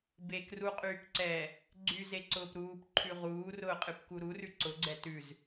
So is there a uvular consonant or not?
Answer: yes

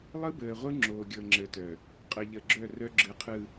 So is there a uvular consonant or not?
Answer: yes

